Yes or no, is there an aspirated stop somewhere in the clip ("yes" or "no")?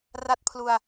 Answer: yes